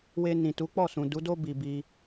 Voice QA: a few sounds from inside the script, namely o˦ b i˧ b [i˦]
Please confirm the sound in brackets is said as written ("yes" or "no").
no